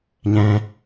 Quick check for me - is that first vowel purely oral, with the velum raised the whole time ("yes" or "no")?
no